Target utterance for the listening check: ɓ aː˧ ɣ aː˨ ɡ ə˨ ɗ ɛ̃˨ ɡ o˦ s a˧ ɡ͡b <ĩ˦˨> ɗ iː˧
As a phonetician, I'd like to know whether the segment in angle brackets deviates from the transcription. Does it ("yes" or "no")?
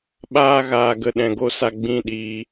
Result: no